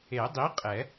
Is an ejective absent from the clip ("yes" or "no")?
no